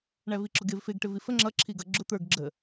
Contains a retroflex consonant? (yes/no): yes